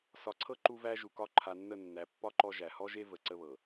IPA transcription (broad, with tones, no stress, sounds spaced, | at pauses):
s ɒ˨ ǀʰ ɤ˦ ǃ u˦ v æ˦ ʒ u˨ k ɒ˦ ǃʰ a˨ nː ə˦˨ nː æ˨ pː ɒ˦ ǃ ɔ˦ ʒ æ˨ h ɔ˦ ʒ e˦ v ə˨ ǀ ə˦ β ɤ˨